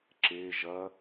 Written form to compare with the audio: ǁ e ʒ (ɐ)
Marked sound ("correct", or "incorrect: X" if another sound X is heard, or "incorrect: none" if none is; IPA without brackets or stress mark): correct